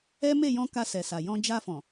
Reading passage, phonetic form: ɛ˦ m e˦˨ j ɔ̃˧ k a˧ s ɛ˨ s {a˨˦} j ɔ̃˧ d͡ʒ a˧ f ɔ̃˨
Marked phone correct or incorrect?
incorrect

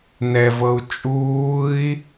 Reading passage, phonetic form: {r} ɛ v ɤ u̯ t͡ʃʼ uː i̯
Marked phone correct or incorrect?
incorrect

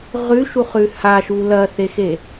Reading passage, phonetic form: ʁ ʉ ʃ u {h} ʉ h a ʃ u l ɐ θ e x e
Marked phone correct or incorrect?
incorrect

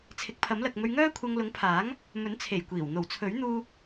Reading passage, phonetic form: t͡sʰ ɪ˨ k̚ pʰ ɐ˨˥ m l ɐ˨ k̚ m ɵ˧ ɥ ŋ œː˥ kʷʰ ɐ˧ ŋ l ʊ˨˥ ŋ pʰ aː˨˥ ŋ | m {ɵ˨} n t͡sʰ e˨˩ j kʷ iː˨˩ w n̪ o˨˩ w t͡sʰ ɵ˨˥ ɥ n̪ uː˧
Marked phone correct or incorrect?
incorrect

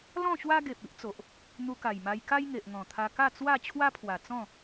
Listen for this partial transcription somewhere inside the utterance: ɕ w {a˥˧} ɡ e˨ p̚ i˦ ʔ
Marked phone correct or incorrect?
incorrect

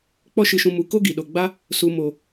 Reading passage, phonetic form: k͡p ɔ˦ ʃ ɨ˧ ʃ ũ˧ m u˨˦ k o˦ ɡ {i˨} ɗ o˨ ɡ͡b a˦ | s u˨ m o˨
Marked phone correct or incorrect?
correct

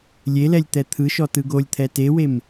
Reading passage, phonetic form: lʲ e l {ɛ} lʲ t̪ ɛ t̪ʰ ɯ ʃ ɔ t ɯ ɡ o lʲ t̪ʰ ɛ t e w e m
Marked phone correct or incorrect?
correct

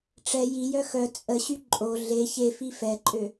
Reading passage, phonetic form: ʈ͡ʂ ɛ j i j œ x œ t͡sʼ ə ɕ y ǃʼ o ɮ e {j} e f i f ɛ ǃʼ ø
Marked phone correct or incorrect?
incorrect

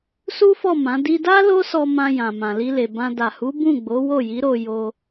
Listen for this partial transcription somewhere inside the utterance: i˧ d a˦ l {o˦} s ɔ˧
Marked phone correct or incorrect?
correct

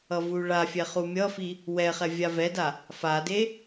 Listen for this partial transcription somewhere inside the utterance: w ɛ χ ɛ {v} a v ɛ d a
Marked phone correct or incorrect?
incorrect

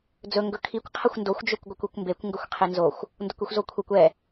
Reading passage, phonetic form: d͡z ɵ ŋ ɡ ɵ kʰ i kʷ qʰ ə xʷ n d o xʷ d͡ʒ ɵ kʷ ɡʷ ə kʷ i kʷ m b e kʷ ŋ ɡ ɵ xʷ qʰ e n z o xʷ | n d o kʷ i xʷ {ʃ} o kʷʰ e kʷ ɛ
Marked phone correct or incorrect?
incorrect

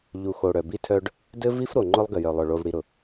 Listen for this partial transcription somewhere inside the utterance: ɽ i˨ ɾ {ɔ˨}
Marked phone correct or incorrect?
incorrect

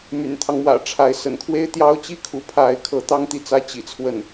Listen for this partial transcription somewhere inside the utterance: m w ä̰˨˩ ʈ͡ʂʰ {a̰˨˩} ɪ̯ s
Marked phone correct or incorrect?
incorrect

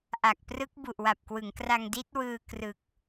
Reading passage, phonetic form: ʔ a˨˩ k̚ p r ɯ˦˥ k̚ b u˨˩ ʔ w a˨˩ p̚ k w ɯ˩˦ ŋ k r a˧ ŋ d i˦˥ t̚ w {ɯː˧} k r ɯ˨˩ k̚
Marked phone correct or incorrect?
correct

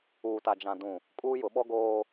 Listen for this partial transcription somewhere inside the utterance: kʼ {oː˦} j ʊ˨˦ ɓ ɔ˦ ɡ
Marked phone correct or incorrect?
incorrect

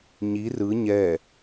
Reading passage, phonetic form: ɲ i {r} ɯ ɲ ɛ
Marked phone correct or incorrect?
correct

